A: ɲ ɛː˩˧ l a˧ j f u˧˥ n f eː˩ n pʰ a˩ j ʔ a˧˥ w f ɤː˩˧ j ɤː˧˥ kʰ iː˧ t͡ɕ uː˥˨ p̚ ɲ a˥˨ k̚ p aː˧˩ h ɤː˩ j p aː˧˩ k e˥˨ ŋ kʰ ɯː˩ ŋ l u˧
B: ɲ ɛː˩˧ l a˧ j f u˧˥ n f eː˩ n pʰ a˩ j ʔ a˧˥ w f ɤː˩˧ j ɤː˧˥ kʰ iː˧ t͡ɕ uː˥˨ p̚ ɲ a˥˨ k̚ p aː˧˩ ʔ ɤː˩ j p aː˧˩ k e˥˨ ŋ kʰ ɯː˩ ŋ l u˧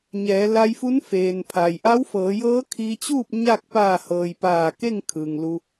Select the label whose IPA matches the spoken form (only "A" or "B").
A